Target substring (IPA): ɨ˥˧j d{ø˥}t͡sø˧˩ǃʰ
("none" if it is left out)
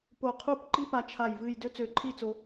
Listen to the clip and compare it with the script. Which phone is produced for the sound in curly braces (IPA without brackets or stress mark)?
ø˥